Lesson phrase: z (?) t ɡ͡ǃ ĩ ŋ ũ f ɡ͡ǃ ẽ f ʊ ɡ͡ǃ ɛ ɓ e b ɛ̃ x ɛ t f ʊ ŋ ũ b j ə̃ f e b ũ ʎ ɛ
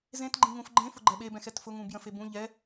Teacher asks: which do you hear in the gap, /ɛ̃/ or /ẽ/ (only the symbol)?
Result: ẽ